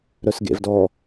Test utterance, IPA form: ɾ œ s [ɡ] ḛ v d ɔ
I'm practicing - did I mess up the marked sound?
no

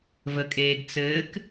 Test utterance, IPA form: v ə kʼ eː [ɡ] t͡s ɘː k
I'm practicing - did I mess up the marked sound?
no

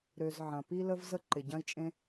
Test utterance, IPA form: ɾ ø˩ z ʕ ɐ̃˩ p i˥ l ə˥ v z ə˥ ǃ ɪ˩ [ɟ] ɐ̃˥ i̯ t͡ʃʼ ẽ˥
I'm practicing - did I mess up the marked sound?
no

